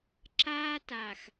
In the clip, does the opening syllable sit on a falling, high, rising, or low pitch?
high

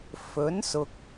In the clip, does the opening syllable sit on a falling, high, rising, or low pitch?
rising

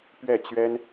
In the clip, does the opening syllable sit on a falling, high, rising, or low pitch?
falling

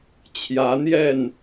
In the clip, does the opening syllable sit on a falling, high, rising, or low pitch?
rising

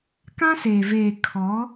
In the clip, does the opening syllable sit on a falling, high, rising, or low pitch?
high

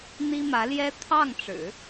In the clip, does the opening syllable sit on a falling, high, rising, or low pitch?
high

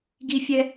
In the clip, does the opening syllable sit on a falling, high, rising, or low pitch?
high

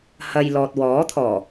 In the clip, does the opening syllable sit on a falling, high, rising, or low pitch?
low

